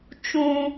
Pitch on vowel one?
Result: high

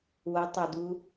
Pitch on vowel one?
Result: rising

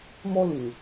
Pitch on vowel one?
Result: high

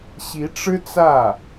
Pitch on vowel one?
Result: rising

